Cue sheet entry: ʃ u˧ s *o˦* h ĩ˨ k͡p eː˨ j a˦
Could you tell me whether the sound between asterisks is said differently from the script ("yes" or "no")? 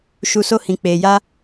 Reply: no